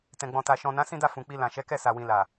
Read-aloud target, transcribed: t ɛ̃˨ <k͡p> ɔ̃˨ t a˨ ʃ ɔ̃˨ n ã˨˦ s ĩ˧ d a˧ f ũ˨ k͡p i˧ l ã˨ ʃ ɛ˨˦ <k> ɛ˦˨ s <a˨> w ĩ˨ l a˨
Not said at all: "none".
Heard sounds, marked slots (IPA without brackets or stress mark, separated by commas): ɡ͡b, k, a˨